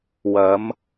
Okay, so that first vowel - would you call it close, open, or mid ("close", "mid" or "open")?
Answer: open